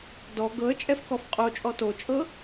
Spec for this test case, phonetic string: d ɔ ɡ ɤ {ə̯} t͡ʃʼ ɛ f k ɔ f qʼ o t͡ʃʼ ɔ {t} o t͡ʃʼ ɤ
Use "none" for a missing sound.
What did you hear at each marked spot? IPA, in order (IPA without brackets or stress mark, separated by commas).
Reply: ə̯, t